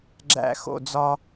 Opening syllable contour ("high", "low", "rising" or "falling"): falling